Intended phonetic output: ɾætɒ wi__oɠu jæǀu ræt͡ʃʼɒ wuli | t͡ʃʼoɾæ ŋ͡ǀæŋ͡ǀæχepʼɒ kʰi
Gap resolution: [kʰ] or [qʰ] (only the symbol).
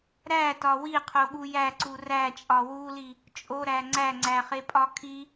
qʰ